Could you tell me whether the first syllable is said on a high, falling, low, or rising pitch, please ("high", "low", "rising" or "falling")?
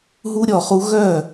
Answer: high